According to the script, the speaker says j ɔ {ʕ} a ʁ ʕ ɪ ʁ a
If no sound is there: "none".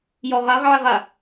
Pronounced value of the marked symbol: ʁ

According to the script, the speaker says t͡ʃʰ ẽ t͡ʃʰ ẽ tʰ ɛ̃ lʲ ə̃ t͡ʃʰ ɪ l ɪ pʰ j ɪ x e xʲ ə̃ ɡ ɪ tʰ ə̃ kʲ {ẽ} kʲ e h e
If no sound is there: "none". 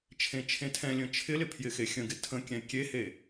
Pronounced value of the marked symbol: ɛ̃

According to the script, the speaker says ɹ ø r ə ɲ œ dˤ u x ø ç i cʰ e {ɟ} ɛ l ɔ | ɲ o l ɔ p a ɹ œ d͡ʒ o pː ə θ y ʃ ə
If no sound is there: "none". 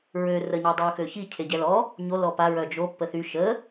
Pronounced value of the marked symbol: ɟ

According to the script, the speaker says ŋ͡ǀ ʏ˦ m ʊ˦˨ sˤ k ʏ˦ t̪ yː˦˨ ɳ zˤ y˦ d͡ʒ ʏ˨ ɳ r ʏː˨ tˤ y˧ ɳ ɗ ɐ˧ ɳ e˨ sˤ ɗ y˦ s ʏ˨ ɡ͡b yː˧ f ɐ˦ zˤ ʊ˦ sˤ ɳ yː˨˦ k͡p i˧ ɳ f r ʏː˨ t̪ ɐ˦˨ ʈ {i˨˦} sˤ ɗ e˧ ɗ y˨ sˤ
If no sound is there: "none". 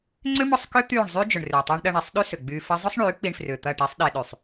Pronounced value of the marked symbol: i˨˦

